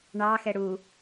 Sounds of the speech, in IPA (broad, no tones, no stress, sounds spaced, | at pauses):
ɳ ɑ x ɛ ɽ u